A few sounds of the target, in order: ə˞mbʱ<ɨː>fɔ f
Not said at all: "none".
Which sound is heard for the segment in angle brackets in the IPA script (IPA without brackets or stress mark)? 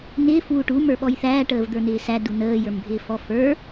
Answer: ɪː